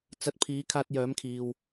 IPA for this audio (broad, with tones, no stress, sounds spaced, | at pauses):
t͡s ɐ˧ t̚ pʰ iː˨˥ kʰ aː˧ t̚ j œː˨˥ m kʰ iː˨ w